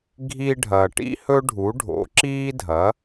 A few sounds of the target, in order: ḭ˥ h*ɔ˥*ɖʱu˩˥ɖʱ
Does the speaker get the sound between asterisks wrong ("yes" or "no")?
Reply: yes